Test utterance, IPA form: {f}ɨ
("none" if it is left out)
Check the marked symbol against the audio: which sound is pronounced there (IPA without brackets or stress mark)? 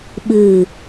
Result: ɓ